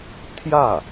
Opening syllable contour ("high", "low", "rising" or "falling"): falling